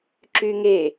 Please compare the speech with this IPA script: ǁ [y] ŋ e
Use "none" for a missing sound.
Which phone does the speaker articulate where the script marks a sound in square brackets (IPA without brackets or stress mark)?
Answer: y